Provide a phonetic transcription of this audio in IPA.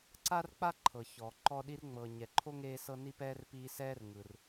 ǀa˦rk͡pa˦ ǃʰɤ˩ çɔ˩ ǃɔ˥ ɗi˥rŋ͡mɤː˨ ɲɛ˨ǃʰo˥ŋeː˦sɤ˦ ni˦pɛː˦r piː˦sɛː˥r ŋɯ˨r

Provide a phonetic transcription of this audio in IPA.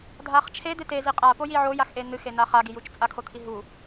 dʱaχt͡ʃʰe d̪ete ziqʼapo jiʕojaxʔe n̪ɨxena χaɡijut͡ʃ t͡sʼakʰot̪ʰi ɦu

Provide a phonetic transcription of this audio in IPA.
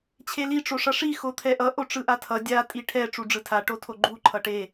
t͡ɕʰeli ʈ͡ʂoʂʌʂi xot̪ʰɛʔʌ ʔoʈ͡ʂɯʔatʰʌ dʲa tʼiʈʰɛ ʈ͡ʂuɖ͡ʐɯtʰa ʈotʰoɡ͡ǃu ǃʰʌʈe

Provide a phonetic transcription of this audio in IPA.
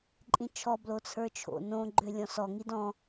ǃʼĩt͡ʃʰɔ blot͡sʰə˞t͡ʃʰo̰ nõ ɡ͡ǃølʲɔ̃sɔ ŋidɔ̃

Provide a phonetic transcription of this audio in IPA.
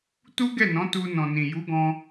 tu˦ɡɛ˦˨nɔ̃˨˦ tu˧nɔ̃˨nĩ˨ ju˨˦ɡɔ̃˧

